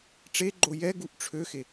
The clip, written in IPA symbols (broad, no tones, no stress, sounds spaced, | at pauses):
ʈ͡ʂ e ɡ͡ǃ o j ɛ ɡ u ʔ ʈ͡ʂʰ ø x e